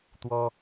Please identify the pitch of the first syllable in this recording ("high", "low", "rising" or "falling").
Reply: high